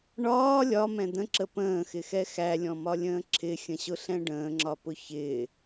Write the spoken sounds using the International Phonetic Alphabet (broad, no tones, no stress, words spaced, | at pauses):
ɳɒː lʲɒmɛ̃ d̪ə̃ǁə pə̃ːxɪxɛ xælʲɔ̃mɒlʲə̃ː ǁʰɪxʲə̃ɕʊɬɛ̃ ɖə̃ːŋ͡ǁɒpʊ çɪː